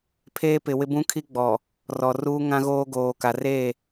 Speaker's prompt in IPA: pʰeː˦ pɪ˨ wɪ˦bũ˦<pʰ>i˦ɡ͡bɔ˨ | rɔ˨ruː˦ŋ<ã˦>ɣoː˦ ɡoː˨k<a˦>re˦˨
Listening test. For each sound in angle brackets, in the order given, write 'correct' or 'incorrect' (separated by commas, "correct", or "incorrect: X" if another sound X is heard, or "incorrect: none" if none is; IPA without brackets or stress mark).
incorrect: kʰ, correct, incorrect: a˨